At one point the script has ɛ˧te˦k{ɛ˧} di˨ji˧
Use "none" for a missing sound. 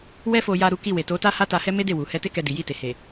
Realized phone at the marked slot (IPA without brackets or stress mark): ɛ˧